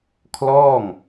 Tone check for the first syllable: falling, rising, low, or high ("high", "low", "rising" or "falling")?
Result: falling